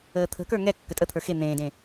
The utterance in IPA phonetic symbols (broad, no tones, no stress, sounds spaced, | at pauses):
əː t̪ʰ ə̤ k ə˞ ŋ ɛ kː ə tʼ ə t̪ʰ ə˞ x e n̪ ẽː d ẽ